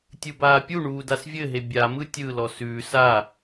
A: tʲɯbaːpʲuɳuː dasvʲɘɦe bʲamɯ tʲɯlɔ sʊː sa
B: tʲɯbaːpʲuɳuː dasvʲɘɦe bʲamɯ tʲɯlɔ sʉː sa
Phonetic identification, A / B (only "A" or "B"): B